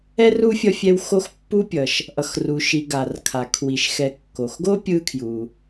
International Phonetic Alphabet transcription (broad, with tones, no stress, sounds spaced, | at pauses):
ɛ˥ r u˥ fʲ ʌ˦ fʲ ɛ˦ w x o˦ x pː u˦ pʲ ʌ˩ ʃ | ʔ ʌ˨ x r u˨ ʃ i˨ ɡ a˩ r kʰ a˩ kʰ w i˩ ʃ x ɛ˨ kː o˩ x ɡ o˥ pʲ ɯ˦ kʰ j u˩